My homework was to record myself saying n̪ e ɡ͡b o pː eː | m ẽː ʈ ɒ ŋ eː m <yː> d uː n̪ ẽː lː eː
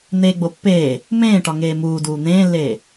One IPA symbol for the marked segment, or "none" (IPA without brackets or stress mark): uː